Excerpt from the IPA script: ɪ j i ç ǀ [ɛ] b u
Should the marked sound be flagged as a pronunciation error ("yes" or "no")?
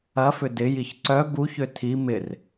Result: yes